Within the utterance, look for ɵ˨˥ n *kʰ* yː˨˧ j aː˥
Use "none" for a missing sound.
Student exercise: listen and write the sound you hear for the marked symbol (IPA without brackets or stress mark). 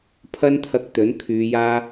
kʰ